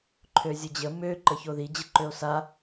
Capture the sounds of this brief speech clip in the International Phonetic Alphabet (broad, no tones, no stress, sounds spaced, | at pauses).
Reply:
ǃʰ ø zʲ ə d͡ʑ ə m ø ǃ ə ç o ð i d͡ʑ ə ǃ ø o̯ s a